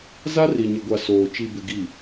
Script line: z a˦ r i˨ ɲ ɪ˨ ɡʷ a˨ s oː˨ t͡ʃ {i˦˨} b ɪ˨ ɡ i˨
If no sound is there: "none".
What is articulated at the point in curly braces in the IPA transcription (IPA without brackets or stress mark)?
i˨